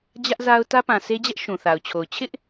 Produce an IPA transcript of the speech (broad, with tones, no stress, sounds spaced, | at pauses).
d͡ʑ ä˦ ʔ z a˦ ʊ̯ t ä˦ p ã˨ sʰ e˦ d͡ʑ ɛ˦ ʔ ʃ ũ˨ θ a˨ ʊ̯ t͡ɕʰ o˨ ʊ̯ t͡ɕʰ ɪ˦ ʔ